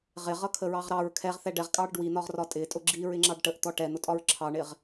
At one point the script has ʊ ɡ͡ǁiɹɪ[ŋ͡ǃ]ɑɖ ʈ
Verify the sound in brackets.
incorrect: ŋ͡ǁ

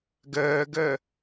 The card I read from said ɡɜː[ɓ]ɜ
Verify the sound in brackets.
incorrect: ɡ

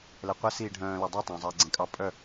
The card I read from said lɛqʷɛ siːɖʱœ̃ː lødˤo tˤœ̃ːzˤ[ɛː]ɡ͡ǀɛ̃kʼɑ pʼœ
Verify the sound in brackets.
correct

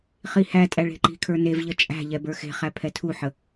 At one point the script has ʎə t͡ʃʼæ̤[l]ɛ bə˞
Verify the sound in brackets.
incorrect: ʎ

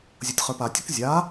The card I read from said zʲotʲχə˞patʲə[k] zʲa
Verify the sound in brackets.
correct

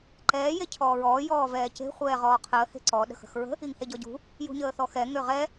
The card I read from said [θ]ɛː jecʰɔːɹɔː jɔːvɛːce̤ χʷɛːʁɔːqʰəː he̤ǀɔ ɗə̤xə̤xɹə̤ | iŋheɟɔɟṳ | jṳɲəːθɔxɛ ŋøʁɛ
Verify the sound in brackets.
incorrect: ǃ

